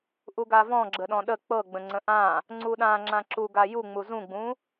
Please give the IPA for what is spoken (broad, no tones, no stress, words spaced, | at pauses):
ʔuɡavɔ̃ ɡ͡ǁəɗɔ̃ɗə k͡pɤɡ͡bə̃ ŋ͡ǀə̃ʔã | ŋ͡ǀuɗã ŋ͡ǁãǁu ɡajuŋ͡mu zũɡ͡bũ